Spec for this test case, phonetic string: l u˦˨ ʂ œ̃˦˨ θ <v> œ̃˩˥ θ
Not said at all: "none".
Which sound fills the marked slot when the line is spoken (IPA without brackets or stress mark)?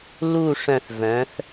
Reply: v